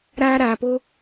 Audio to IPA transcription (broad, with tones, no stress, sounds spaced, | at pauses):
ɾ aː˦ ɾ aː˨ p o˦